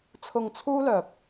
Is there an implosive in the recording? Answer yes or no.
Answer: no